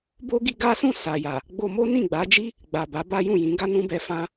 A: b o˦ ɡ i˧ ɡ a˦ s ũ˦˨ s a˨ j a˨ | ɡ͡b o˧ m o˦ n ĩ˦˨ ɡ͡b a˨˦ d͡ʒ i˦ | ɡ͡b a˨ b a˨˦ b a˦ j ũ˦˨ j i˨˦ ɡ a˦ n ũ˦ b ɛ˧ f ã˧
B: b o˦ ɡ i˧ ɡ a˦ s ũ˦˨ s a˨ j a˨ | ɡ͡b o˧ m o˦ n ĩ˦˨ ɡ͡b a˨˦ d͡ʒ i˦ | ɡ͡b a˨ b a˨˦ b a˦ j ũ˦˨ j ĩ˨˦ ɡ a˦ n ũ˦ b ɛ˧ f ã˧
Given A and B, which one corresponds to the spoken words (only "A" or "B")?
B